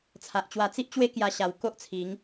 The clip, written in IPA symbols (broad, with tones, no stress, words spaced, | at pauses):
t͡sʰa˨ʔt͡ɕwa˧ t͡si˦ʔt͡ɕwe˦ kja˧ɕa˨˩w ko˦ʔt͡sʰi˨˦ŋ